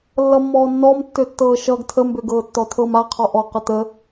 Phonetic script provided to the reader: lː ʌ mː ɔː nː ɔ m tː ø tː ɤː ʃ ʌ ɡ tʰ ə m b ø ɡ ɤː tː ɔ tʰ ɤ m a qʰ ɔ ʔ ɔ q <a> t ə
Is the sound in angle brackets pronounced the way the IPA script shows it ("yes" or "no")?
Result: no